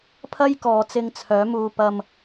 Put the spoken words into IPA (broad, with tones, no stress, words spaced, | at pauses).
pʰɐ˥jkɔː˨˧t͡sɪ˧ŋ t͡sʰœː˨˥muː˧ pɐ˧m